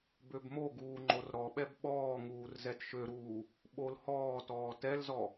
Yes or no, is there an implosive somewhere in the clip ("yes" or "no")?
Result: yes